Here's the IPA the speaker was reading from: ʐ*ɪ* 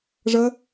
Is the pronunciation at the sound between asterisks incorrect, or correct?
incorrect: ə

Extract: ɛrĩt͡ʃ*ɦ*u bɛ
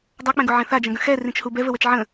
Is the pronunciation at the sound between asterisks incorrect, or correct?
incorrect: h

